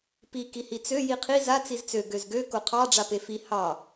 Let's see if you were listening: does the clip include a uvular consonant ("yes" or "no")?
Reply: yes